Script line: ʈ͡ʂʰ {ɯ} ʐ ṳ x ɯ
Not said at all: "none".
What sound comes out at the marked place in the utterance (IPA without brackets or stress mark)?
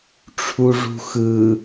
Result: u